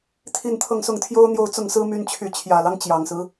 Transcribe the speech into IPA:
t̪ʰ i˥˧ n t̪ʰ ɤ˥˧ ŋ s ʊ˥˩ ŋ t̪ʰ j o˥ ʊ̯ n̪ j o˥˧ ʊ̯ t͡s ʊ˥˩ ŋ s ɹ̩˥ m y˥ n t͡ɕʰ y˥˩ t͡ɕʰ j ä˨˩ l ɑ˦ ŋ t͡ɕ j ɑ˨˩ ŋ s ɹ̩˦

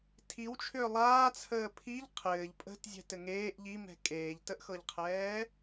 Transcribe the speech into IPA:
tʰ i w t͡ʃʰ ʏː lˠ aː t͡sʰ əː pʰ i ʎ qʰ ɘː ʎ pʼ ə̤ t zʲ ɛ̤ t ɘ ŋ eː ʔ ʎ i m ɛ̤ kʼ eː ʎ t ə ʔ x ɤ ʎ qʰ ɛː

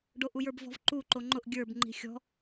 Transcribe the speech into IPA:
ɖ o ʔ u j ə˞ b v ɔ̤ v ǃ u ǃ o ŋ͡ǃ ʊ ʔ ɡʲ ə˞ b ŋ͡ǃ i̤ xʲ ɔ̤

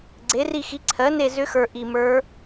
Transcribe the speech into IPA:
ɡ͡ǀ e˩˥ r i˦˨ x i˩˥ ǀʰ ɜ˩˥ n e˦˨ z ʏ˧˥ x ə˞˨˩ ʔ i˨˩ m ə˞˧˥

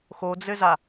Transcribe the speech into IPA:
x o d͡z ɘ z a

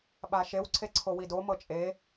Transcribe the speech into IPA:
ɓ a ʃ e w ǀʰ e ǀʰ o w i d o m ɤ t͡ʃʼ e

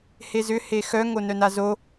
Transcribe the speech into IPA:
h e z ʏ h e x œ ŋ o n œ n a z o

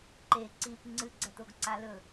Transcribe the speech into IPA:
ǃ e ǀ i p ŋ͡ǀ ɨ ɡ͡ǀ ɐ t o ɡ ǀ a l ɵ

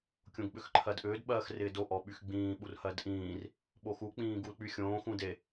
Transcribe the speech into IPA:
kʲ õ ɡ ɓ ʏ x ǃʰ ɜ d ʔ ʏː d ɓ ɜː x r ɪː d o ʔ ɔ ɓ y x ɡ͡b ĩː ɓ u r h ɜ d ʔ ĩː r | ɓ o x u k͡p ĩː ɡ u l k͡p y xʲ õː x ũ d e

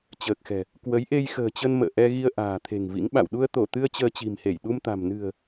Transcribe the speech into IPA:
t͡ɕ əː˨˩ k̚ x ɛ̤˨˩ | k w ə˨˦ j ʔ e˧ j x ə̤ː˨˩ t͡ɕ ə˧ n m ə̰ː˧˨ ʔ ɛ˧ ɣ i˧ ə̯ ʔ a̤ː˨˩ t̪ʰ e̤˨˩ ŋ v ḭ˧˥ ŋ ɓ a̰˧˨ w ɗ u˧ ə̯ t̪ o˧˩ t̪ ɨ˧ ə̯ t͡ɕ əː˧ t͡ɕ i̤˨˩ m h e˧˩ j ɗ u˧ m t̪ a̤˨˩ m n ɨ̤˨˩ ə̯

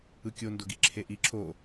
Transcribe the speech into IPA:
ɯ kʲ o n d o ɡ i ǁʰ e ʔ i ǁʰ o

